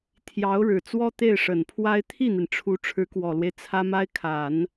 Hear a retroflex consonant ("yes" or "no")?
yes